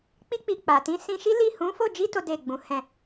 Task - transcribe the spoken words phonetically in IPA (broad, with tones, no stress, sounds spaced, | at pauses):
k͡p i˧ k͡p i˨ k͡p a˨ t ĩ˨˦ s ĩ˧ ʃ i˦ l i˦˨ h ũ˨˦ f o˦˨ d͡ʒ i˧ t o˦ d e˦˨ ɡ͡b ũ˨˦ h ɛ̃˦˨